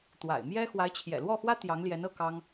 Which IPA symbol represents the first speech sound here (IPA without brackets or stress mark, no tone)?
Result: t̪